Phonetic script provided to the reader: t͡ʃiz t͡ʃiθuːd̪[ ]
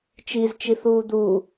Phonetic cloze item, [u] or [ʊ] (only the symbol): u